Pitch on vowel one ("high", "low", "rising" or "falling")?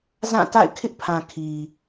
falling